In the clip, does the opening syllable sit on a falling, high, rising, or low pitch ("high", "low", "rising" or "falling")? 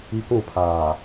high